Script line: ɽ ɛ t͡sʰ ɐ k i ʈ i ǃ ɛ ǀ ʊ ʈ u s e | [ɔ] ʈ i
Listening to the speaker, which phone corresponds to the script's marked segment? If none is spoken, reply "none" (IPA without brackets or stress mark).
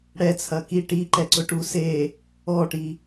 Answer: ɔ